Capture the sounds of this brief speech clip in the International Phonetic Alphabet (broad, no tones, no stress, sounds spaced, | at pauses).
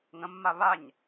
ŋ ə̃ mː a β a ɲ